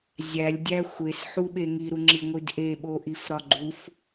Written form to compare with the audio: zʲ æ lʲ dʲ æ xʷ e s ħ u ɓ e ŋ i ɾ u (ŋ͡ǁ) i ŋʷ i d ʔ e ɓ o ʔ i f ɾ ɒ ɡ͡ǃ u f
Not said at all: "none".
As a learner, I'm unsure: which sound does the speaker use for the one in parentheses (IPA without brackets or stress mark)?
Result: ŋ͡ǁ